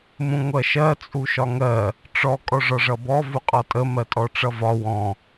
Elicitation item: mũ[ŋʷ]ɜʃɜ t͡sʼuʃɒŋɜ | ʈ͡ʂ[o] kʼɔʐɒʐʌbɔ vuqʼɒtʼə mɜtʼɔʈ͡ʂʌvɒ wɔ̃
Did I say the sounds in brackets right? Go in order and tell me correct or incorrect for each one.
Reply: correct, incorrect

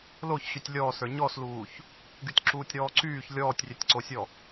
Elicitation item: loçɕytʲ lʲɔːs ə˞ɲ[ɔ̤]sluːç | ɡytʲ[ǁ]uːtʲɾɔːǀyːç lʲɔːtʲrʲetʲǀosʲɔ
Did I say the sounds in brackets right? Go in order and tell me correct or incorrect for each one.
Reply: incorrect, correct

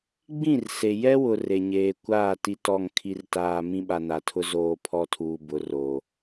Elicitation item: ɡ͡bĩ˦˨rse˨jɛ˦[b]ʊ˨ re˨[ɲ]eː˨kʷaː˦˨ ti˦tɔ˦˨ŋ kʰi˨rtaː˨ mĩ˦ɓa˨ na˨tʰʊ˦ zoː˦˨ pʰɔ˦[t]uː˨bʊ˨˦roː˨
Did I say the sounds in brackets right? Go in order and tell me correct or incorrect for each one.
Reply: incorrect, correct, incorrect

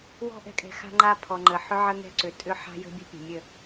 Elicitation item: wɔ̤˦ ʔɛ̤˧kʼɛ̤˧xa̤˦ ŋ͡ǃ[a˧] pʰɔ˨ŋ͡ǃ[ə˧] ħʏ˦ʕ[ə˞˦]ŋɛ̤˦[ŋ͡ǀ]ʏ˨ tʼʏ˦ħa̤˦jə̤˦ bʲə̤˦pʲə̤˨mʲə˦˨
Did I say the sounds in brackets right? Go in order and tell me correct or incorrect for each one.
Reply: correct, incorrect, incorrect, incorrect

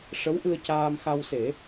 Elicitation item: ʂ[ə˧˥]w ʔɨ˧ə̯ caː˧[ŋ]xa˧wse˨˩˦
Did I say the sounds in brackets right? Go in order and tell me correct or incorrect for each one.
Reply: correct, incorrect

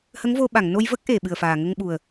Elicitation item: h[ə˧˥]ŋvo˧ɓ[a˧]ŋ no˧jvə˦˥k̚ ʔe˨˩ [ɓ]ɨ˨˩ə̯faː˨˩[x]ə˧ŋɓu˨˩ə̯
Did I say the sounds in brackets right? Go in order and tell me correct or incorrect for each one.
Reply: correct, incorrect, correct, incorrect

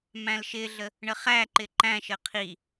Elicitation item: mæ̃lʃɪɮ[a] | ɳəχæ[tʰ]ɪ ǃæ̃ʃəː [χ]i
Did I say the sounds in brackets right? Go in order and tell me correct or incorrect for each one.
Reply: incorrect, incorrect, incorrect

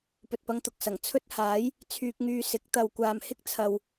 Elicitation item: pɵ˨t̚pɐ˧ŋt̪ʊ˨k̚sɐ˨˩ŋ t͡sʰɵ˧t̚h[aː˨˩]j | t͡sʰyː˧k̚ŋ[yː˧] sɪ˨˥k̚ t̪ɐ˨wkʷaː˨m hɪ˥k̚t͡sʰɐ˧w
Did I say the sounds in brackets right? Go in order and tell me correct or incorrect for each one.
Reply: incorrect, correct

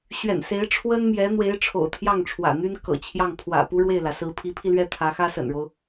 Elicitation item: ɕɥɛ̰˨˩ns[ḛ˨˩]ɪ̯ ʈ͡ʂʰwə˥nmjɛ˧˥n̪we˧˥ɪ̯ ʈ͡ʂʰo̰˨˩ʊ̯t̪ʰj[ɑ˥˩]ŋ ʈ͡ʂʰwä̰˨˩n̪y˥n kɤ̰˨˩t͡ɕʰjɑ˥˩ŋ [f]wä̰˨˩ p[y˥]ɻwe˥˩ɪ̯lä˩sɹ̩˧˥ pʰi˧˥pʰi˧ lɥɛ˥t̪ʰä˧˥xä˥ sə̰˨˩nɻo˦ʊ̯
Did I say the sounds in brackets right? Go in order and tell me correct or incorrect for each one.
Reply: incorrect, correct, incorrect, incorrect

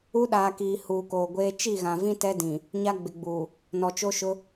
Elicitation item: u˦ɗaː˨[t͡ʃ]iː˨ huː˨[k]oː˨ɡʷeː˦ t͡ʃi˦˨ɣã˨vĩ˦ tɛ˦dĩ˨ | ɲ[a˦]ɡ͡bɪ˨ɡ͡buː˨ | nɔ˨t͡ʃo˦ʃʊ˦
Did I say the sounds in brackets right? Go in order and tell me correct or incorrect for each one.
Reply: incorrect, correct, correct

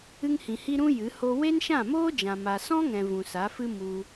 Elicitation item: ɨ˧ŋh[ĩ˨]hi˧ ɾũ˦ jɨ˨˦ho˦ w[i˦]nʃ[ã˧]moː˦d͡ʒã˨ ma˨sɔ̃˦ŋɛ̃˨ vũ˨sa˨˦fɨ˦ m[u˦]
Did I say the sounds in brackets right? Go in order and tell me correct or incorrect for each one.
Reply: correct, incorrect, incorrect, incorrect

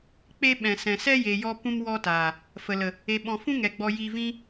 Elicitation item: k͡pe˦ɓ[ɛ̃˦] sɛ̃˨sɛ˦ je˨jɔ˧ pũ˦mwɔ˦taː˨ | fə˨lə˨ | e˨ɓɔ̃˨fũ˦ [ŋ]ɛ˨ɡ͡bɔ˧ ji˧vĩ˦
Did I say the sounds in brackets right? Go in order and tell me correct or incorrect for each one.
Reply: incorrect, correct

